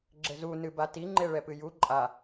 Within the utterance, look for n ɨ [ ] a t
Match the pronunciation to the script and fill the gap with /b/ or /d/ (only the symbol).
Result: b